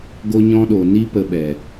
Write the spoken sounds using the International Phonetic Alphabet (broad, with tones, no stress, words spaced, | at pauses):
ɡo˧ɲɔ̃˧ɗo˨ ni˦ pə˧ɓɛ˨